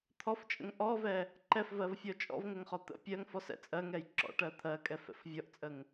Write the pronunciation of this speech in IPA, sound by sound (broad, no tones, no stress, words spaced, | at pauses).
t̪ʰɔft͡ʃʼə̰ŋ ʔɔvɛ | ǃɛfvɜvfʲɔ t͡ʃʼɔ̰vŋəŋχɔ t̪ə̰ pʲɜŋfɔsɛ̰ t͡sʼɜŋɛj ǁɔ̰ʈɜ t̪ʰɜkʼɛfɛ̰f vʲɔʔt͡sʼəŋ